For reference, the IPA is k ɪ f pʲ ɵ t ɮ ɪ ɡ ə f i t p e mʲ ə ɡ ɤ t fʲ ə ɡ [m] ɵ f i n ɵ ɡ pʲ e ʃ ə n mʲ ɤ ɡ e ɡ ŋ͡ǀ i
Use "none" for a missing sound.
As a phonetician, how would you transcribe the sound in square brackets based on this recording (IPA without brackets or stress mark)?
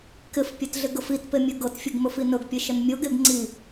m